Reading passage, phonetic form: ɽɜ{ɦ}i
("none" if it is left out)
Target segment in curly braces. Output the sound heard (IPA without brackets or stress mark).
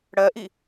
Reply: ʔ